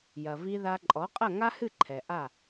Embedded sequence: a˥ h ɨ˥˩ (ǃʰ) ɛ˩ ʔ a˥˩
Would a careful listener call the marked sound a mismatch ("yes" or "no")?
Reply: no